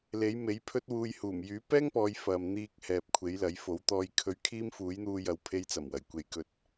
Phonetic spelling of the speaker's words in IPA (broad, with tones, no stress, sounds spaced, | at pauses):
l e˨˥ j m e˨˥ j pʰ ɵ˥ t̚ w uː˧ j h uː˨˩ m j yː˨˥ p ɛː˥ ŋ p ɔː˨˧ j f ɐ˨ m n̪ iː˧ k̚ h ɛː˨ p̚ kʷʰ e˨˥ j l ɐ˨˥ j f o˨˥ w t̪ ɔː˧ j kʰ ɵ˧ ɥ kʰ iː˥ m f uː˨˥ j n̪ uː˧ j ɐ˨ w pʰ e˧ j t͡s ɐ˨˩ m w ɐ˨˩ j kʷ e˨ j k ɵ˧ t̚